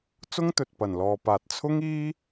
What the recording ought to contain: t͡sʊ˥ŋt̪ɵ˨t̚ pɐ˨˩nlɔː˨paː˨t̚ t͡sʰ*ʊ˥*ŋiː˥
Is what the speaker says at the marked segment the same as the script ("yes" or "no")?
yes